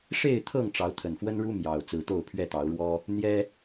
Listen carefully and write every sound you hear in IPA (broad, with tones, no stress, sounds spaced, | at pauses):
ʂ e˥˨ ɪ̯ t̪ʰ ɤ˥˨ ŋ ʈ͡ʂ ɑ˨˦ ʊ̯ t̪ʰ ə˨˩ n f w ə˦ n ɻ u˦ m j ɑ˨˩ ʊ̯ t͡s ɹ̩˨˦ t̪ o˥˨ ʊ̯ pʰ ɥ ɛ˥˨ t̪ ɑ˨˦ ʊ̯ ɻ w ɔ˦ | n̪ j ɛ˦